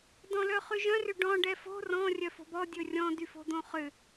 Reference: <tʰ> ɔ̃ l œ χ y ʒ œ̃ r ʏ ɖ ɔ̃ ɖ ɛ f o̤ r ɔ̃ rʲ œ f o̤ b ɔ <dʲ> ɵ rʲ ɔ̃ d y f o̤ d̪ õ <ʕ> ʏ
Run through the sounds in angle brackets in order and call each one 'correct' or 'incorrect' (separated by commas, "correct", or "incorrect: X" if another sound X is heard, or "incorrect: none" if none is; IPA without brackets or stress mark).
incorrect: d, correct, incorrect: χ